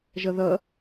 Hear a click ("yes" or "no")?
no